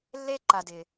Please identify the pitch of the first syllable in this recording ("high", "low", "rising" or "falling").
high